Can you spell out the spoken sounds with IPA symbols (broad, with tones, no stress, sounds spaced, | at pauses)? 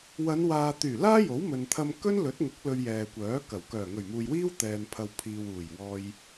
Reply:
w ɐ˨˧ n w aː˨ t̪ yː˨˩ l aː˥ j o˨˥ w m ɵ˨ n t̪ʰ ɐ˧ m k ɵ˥ n l ɵ˨˥ t̚ ŋ ʊ˨˥ k̚ l ɵ˧ ɥ j ɛː˨ kʷ œː˨˥ k ɐ˨˩ w k œː˨˩ ŋ ɵ˨˩ ɥ m uː˨ j w iː˥ w t̪ ɛː˨ n pʰ ɐ˨ w pʰ iː˨ w uː˨˩ j w ɔː˧ j